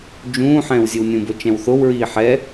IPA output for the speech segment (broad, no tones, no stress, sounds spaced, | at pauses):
d͡ʒ ũː ħ ɛ̃ː w zʲ ɘ w nʲ ũ b o t͡ʃ ɛ̃ w θ o w ɹ iː ħ ɛ